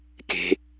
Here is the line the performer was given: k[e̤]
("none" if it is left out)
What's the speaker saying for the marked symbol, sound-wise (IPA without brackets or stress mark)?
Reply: e̤